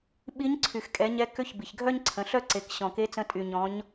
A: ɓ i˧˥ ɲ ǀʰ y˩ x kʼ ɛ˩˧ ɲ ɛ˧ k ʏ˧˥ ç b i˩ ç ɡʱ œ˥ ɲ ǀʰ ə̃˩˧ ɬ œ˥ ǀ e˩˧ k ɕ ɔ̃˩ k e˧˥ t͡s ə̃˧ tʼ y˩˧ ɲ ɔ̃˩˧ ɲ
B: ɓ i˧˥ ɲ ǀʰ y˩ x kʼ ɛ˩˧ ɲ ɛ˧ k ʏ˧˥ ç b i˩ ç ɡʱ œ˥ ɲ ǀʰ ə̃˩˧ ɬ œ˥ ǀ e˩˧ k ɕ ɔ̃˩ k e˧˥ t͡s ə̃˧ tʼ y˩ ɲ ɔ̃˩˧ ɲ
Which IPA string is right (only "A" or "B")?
B